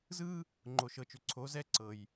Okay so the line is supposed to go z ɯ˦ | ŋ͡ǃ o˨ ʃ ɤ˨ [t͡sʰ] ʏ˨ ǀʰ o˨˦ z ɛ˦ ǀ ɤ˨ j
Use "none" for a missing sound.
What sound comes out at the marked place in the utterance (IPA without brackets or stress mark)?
t͡ʃ